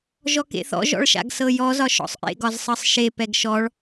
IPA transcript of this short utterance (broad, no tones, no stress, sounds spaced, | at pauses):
ʒ ɔ k ḛ θ ɔ̰ ʒ ɔ̰ ɭ ʃ a̰ ɡ s ɤ j ɔ z ɒ ʃ ɔ̰ sˤ ʔ ḛ ɡ ɒ z sˤ ɤ sˤ ʃ e p ɛ ɡ ʃ ɔ ɭ